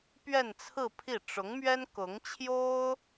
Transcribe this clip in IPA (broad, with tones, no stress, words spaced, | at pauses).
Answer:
pɥɛ˥˧nt͡sʰɹ̩˥˧pʰi˥˩ ʈ͡ʂʊ˧˥ŋmɥɛ˥n kʊ˧˥ŋt͡ɕʰjo˥ʊ̯